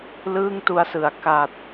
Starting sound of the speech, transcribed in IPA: l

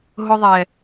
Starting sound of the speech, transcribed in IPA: ɦ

